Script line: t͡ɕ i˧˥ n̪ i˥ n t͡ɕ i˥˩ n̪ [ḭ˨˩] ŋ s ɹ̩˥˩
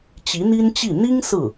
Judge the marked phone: incorrect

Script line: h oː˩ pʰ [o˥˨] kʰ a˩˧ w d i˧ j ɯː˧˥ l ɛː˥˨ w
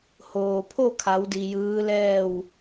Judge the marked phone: correct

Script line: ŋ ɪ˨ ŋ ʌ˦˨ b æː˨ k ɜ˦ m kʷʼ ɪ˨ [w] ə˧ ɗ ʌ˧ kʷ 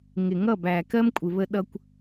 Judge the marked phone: incorrect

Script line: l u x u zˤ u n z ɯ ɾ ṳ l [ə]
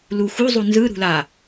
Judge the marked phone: incorrect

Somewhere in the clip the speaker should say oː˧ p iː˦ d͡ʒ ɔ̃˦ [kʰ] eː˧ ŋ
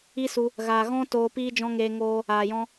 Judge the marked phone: incorrect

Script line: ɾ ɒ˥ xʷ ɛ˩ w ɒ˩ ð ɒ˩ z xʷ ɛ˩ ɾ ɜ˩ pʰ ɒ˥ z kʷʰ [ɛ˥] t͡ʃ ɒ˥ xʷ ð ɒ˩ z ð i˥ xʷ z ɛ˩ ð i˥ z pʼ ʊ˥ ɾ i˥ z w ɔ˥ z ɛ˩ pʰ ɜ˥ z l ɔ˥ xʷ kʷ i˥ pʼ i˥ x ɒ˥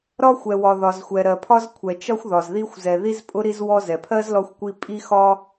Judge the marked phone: incorrect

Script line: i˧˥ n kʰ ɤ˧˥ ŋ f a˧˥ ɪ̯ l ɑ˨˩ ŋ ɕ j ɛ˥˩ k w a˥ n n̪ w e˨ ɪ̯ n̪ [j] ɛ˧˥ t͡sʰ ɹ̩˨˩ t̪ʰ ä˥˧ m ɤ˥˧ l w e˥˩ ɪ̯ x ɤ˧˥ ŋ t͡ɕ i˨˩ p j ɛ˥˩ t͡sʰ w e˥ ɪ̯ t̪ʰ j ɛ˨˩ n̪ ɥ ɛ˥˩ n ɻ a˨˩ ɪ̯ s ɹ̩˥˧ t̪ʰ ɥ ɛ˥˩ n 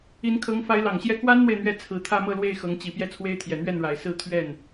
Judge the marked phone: incorrect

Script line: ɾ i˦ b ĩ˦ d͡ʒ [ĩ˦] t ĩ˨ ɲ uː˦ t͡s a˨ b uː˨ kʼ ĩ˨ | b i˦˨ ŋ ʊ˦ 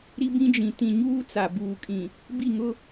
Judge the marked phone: incorrect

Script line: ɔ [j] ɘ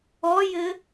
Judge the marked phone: correct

